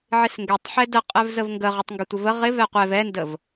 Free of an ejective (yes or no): no